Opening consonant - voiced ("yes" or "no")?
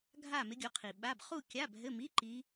yes